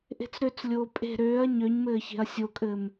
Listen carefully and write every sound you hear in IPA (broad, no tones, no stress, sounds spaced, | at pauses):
ʔ e̤ t͡s ɾ ø t͡s lʲ oː pʼ e̤ ɾ øː ɐ̯ ɲ ø ɲ m ɘː ç e̤ ɐ̯ sʲ o kʼ ɘː m